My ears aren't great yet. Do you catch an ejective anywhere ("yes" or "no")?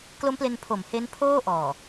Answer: no